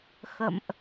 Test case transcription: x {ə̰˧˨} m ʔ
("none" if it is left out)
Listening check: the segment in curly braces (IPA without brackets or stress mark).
ə̰˧˨